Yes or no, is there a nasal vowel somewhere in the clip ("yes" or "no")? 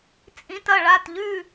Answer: yes